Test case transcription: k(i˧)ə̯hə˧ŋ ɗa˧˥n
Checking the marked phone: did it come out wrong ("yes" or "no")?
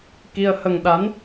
no